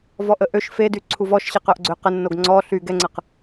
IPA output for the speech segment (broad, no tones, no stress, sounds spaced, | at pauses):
v ɔ ʔ ə ʔ ø ʃ f e d y ǀʰ u v ɔ ʃ ɕ e q œ ʔ ɡ͡ǀ ø q ə nː o ɡ ŋ͡ǀ ɔ ɬ y ɡ ɛ ŋ͡ǀ ə q